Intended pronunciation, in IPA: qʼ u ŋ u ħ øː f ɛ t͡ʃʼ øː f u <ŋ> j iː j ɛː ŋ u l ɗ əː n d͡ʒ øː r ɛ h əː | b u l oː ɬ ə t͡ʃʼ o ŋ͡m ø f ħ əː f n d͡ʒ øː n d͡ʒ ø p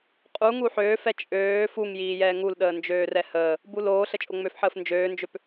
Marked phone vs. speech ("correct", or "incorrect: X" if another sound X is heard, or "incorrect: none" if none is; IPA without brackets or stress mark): correct